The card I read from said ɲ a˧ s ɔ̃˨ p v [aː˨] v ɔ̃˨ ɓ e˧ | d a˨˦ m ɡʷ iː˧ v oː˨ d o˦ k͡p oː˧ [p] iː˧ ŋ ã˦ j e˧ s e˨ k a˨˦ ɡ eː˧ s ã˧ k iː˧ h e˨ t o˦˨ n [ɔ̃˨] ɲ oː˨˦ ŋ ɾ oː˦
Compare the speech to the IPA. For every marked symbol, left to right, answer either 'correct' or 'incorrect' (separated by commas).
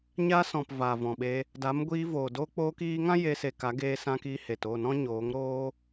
correct, incorrect, incorrect